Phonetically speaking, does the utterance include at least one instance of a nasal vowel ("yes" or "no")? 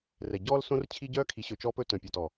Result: yes